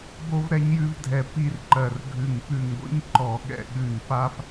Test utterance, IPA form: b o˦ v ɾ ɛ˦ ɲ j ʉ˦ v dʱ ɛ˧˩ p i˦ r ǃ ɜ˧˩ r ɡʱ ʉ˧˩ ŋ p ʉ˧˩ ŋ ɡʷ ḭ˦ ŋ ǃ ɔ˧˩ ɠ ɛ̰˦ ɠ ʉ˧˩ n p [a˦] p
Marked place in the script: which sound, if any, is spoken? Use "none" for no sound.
a˦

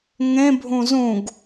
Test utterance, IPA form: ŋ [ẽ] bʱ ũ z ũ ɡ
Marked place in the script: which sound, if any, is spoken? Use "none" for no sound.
ẽ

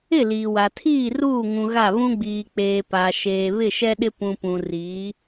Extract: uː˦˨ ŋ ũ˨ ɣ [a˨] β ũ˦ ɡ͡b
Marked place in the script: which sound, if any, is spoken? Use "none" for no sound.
a˦˨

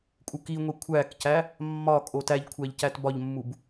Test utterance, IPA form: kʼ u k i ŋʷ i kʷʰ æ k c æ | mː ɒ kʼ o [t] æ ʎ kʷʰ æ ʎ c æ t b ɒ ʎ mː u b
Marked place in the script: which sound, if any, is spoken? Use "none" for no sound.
t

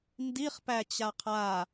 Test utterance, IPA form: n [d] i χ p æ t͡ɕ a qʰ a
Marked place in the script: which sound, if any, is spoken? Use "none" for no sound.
d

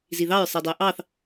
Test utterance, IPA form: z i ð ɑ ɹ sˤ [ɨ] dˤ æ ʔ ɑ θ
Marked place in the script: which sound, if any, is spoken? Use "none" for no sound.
i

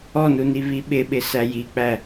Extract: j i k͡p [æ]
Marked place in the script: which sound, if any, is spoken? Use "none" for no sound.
æ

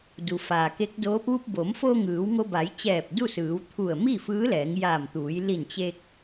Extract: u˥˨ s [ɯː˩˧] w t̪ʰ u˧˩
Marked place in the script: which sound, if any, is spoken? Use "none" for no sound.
ɯː˩˧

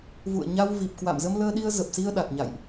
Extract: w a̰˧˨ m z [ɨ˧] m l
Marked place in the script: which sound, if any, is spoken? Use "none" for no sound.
ə˧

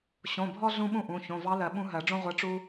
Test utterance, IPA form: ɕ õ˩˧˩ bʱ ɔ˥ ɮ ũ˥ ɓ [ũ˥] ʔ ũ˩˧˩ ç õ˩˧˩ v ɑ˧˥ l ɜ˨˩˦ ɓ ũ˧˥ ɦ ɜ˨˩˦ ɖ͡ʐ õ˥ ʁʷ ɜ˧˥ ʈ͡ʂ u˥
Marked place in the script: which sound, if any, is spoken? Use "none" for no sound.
ũ˥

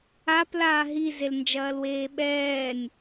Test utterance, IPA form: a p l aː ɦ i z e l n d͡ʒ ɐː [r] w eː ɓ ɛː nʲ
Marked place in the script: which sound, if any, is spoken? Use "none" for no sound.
l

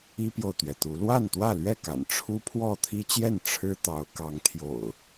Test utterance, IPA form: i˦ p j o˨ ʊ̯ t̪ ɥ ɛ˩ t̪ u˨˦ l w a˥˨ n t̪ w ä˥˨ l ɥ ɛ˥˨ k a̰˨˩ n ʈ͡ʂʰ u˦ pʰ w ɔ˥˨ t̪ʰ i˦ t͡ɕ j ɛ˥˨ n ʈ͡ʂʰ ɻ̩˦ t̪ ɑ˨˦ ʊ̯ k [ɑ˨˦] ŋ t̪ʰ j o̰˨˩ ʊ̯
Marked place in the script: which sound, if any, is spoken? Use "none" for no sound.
ɑ˨˦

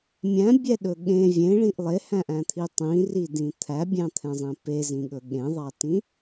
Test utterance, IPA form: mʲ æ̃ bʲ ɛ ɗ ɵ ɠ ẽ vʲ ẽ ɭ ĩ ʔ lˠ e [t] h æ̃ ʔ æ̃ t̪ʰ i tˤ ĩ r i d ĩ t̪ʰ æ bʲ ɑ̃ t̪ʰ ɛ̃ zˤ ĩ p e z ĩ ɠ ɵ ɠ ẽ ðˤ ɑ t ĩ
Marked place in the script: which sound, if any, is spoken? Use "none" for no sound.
none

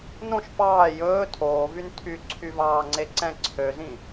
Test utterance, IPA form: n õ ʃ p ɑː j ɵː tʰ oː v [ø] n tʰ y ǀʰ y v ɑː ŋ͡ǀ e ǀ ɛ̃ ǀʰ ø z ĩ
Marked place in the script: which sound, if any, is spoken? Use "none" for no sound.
y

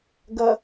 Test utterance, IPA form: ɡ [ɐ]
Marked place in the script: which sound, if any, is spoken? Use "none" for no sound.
ɐ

